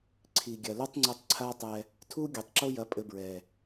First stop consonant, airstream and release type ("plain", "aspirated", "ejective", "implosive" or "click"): click